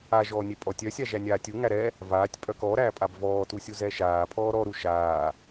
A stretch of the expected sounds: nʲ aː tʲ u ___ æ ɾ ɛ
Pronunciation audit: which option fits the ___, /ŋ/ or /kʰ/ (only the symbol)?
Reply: ŋ